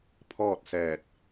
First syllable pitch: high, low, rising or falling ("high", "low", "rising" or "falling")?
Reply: falling